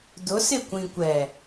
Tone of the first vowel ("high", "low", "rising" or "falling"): rising